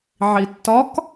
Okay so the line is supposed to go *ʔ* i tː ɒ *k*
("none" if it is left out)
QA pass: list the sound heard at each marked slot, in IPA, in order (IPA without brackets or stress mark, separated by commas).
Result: ʕ, k